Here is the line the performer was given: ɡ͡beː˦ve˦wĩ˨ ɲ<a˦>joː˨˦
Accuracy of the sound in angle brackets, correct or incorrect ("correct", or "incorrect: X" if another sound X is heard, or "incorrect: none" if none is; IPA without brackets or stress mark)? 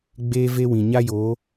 correct